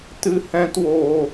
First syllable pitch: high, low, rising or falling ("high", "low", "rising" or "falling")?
high